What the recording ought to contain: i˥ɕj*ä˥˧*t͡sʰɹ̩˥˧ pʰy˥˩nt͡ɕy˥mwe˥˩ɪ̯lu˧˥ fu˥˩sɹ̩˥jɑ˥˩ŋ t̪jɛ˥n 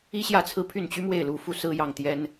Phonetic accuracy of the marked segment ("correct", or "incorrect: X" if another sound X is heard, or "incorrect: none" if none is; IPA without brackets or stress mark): correct